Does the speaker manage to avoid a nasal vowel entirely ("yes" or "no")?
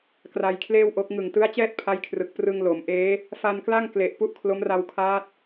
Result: yes